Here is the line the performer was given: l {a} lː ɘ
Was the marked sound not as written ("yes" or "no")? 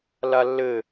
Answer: no